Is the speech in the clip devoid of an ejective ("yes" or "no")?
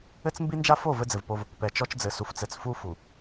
yes